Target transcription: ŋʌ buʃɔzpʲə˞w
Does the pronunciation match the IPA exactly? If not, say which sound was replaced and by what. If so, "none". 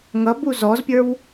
ʃ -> z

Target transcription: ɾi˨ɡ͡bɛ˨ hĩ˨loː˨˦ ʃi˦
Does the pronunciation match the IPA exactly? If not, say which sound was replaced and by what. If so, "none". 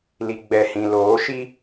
ɾ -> l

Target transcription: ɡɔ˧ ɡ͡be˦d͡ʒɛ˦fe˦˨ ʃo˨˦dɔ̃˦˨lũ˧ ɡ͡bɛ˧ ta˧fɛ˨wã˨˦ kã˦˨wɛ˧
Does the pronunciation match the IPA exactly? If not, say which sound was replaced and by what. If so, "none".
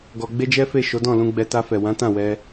k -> t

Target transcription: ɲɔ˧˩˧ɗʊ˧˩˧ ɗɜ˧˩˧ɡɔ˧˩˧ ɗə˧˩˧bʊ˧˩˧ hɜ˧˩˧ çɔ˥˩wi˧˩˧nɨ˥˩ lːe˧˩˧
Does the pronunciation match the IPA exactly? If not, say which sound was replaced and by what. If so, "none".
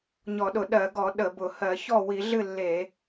n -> ɮ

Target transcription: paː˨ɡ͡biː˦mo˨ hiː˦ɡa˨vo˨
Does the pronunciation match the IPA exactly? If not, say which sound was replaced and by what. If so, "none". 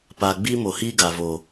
none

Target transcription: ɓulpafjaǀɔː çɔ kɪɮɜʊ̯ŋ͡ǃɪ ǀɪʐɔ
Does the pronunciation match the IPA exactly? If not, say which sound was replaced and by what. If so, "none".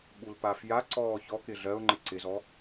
ʐ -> z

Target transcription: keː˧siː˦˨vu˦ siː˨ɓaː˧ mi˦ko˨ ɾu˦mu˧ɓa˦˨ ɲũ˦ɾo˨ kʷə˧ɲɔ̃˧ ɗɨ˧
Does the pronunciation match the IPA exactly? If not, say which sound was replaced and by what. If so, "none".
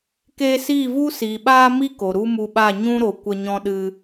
none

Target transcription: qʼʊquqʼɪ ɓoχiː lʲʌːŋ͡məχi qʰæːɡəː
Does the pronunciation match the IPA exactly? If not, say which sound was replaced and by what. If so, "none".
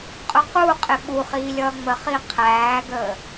o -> u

